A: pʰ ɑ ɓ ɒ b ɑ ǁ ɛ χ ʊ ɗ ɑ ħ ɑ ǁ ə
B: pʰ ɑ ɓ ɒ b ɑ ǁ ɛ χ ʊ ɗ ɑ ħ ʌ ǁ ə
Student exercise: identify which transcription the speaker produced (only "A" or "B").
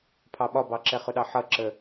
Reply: B